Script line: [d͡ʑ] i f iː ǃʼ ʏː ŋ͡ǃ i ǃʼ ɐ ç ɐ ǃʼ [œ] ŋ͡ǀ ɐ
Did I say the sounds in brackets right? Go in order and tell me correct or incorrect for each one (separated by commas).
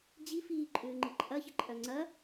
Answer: correct, correct